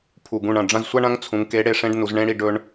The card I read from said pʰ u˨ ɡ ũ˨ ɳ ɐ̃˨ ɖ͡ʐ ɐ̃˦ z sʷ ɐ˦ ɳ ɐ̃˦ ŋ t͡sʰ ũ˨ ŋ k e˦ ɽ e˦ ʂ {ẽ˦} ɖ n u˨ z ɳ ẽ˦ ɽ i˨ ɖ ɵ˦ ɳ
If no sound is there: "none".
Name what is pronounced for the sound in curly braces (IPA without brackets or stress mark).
ẽ˦